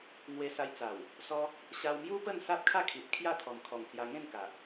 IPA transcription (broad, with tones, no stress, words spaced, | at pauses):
ŋwe˧sa˧jt͡sa˨˩w | sɔ˧ | ɕa˧wmju˦pə˥˧n sa˦p̚ kʰa˥˧kʰi˨ʔ kʰja˥˧t̪ʰɔ˨˩mkʰɔ˨˩ŋ t͡sja˧ŋẽ˥˧nka˨ʔ